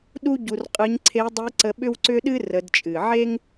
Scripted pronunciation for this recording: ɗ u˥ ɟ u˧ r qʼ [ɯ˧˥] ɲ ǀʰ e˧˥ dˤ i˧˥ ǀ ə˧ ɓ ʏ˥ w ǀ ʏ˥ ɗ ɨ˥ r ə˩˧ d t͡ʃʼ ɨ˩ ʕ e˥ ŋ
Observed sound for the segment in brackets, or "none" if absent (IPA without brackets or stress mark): ɯ˧˥